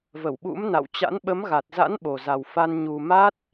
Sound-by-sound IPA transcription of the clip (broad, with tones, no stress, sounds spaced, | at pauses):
v ə˧˩ w ɓ ṵ˧˥ m n a̰˧˨ w t͡ɕ a̰˧˥ n ɓ ə˨˦ m ɣ a˨˩ t̚ z a̰˧˥ n ɓ o˨˩ z a˨˩ w f a˧ n ɲ u˨˩ m a˦˥ t̚